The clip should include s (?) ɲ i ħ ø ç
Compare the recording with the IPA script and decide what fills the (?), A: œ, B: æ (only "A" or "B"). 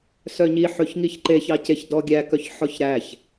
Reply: A